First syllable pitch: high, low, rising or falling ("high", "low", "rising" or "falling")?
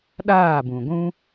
falling